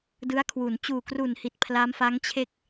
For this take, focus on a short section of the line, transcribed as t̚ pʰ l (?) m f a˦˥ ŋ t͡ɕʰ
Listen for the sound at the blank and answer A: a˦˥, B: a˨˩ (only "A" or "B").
A